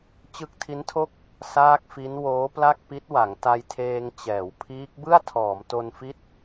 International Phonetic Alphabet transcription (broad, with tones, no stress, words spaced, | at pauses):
t͡ɕɯ˦˥k̚tʰi˦˥ntʰo˥˩k̚ | saː˥˩k̚fi˦˥n woː˦˥pla˥˩k̚pi˦˥t̚wa˩˦ŋ ta˧jtʰeː˧ŋ t͡ɕɛː˩˦wpʰiː˦˥k̚ bɯ˥˩a̯tʰɔː˩˦mto˧nfi˦˥t̚